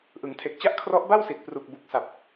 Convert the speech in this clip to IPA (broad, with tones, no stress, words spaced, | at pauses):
ʔɯ˩˦ŋtʰe˨˩k̚t͡ɕa˥˩ʔ kʰrɔ˦˥ʔba˥˩wsi˨˩t̚ pru˨˩k̚bu˨˩k̚ sa˨˩p̚